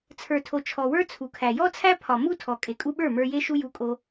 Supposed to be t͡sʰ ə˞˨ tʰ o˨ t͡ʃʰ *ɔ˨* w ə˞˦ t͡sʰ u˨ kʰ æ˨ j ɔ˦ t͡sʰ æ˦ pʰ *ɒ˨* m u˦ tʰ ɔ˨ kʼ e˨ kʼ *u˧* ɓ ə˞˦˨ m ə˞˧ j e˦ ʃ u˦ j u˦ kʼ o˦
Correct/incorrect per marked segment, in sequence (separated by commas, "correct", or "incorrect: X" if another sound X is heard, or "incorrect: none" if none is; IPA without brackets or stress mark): correct, correct, correct